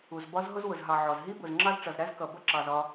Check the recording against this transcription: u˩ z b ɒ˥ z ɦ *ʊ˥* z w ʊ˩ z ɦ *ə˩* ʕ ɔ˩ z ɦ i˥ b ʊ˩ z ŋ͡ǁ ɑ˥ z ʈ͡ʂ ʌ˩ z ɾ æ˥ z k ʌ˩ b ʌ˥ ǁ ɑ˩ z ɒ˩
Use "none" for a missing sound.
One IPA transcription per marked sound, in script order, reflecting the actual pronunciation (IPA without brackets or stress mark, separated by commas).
ʊ˥, ɑ˩